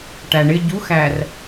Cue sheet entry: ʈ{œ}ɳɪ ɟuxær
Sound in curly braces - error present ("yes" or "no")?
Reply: yes